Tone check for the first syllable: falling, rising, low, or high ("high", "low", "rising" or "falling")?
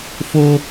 high